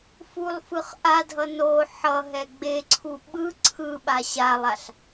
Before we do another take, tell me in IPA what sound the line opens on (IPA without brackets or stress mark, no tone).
f